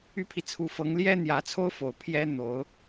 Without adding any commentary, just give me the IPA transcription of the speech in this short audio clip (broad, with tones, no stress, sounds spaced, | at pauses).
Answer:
y˥ pʰ i˨ t͡sʰ u˧˥ f ɤ˧˥ ŋ l j ɛ˥ n̪ j ä˧˥ t͡sʰ o˥ ʊ̯ f o˨˩ ʊ̯ pʰ j ɛ˥ n̪ o˧˥ ʊ̯